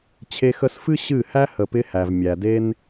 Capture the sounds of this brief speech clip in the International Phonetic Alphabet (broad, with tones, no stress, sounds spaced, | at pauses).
t͡ɕʰ e˧ x ə˧ s f ɨ˦ ɕ ɨ˦˨ h æ˦ h ə˨ p ɪ˧ h æ˨ v mʲ æ˨ d e˦ n